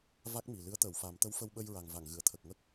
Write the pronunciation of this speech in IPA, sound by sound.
va˦˥k̚mi˨˩lɨ˧˥ə̯ t̪əː˨˩˨wfa˨˩˦m t̪ə˧˥wfə˧wɓə˧jɹa˨˩ŋ va˨˩˨ŋɣɨ˨˩˨ə̯t̪ʰə˨˩k̚ŋə˦˥k̚

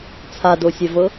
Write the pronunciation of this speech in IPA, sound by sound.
t͡sʰadosʲɛvɤ

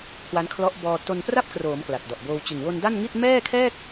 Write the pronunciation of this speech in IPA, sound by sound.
kʰwa˦˥nkʰlɔ˦˥ʔ bɔː˧ to˧npra˥˩p̚kroː˩˦m kla˨˩t̚dɔ˨˩ʔboː˧w t͡ɕɯ˨˩ŋwo˧nda˥˩nŋi˥˩t̚ mɛː˥˩kʰɛː˥˩k̚

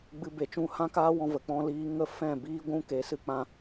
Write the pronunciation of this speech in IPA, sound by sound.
ɡ͡bɨ˧be˨t͡ʃũ˦˨ hã˦kaː˦wɔ̃˧ və˨k͡pɔ̃˦liː˦ ŋə˦fɛ̃˦˨biː˦ɡʷũ˦ ke˨˦sɨ˧k͡pã˧

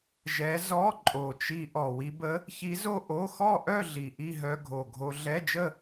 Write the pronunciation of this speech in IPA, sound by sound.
ʒɛ˧˥ zɔ˧˥˧ ǃʼo˨˩t͡ʃi˧ ʔɔ˨˩wi˧bə˧˥ | çi˧˥zo˥˧ ʔo˧˥˧ xɔ˥˧ʔœ˥˧ ɮi˨˩ʔi˥˧ɦœ˧ ɡʱo˨˩ɡʱo˧ ɮɛ˧˥˧d͡ʒə˥˧

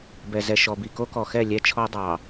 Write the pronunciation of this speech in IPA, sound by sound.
bɛ˨zɛ˨ʃɔ˨bi˨ ko˦kɔ˨xɛ˦˨ lʲɛ˦t͡ʃʰɔ˦dˤɑ˨

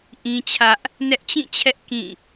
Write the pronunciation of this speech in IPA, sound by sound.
ʔĩ˦t͡ɕʰä˦ʔ | nɛ˦ʔt͡ɕĩ˦˨t͡ɕʰɛ˦ʔ kĩ˦˨

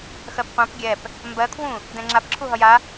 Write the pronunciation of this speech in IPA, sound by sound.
xɜpqʷãp ɡʲɛp | mbɜkʰwũ | dɛ̃ŋ͡ǁapǁʰu ɦʌja

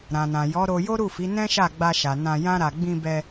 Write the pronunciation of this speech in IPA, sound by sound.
ɾã˨nã˨ jɔ˨˦ ɾo˧jo˦ɾu˦˨fi˨˦ nɛ̃˦ʃa˦˨ ɡ͡ba˧ʃa˨ nã˧jã˦ɾa˧ ɡ͡bĩ˧bɛ˧

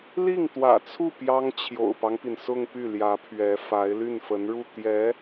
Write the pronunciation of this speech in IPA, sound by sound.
li˥˩ŋ t̪wä̰˨˩t͡sʰu˥˩ pjɑ˥ŋ t͡ɕʰjo̰˨˩ʊ̯pɑ˦ŋpi˩n sʊ˥˧ŋpy˥˩ ljä˧˥pʰɥɛ˧˥fa˧˥ɪ̯ ly˥˩nfə˧˥nɻu˥˩ t̪jɛ˧˥

